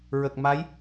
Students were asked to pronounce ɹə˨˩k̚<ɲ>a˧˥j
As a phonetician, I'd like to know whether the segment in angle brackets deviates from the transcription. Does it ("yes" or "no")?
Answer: yes